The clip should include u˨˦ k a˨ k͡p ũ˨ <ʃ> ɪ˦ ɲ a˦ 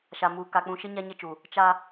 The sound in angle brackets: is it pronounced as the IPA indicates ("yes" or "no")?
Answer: yes